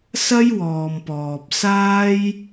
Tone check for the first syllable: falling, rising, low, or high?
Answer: high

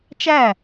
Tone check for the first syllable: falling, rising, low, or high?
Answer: falling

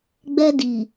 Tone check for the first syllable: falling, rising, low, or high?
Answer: high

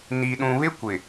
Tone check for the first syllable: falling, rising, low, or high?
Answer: low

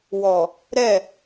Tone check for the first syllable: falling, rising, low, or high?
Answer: low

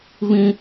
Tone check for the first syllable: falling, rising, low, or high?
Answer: high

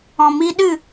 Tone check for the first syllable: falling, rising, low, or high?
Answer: low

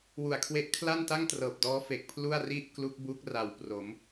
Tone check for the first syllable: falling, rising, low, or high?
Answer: low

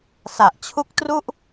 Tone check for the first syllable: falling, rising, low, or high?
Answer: low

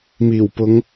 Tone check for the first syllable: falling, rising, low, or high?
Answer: low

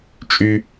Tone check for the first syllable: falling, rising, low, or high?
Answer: high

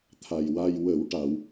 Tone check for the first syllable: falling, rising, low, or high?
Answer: low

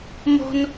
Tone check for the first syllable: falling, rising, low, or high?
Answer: high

